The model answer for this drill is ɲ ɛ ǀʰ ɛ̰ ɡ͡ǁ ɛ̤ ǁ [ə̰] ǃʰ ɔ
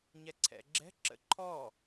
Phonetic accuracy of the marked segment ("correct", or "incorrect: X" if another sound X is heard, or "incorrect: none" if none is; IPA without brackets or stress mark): correct